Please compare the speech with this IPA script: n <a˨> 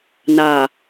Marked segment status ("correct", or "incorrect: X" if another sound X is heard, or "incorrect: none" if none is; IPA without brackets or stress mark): correct